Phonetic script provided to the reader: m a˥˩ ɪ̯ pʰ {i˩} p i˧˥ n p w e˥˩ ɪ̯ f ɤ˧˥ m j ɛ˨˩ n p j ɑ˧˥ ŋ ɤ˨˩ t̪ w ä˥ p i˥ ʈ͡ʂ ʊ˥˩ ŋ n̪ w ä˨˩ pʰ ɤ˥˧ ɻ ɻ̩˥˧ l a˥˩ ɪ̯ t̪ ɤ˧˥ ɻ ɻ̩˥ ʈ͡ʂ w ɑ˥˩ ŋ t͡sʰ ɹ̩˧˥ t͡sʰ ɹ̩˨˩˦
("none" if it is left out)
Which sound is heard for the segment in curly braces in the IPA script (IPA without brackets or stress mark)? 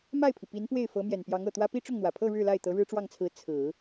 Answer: i˩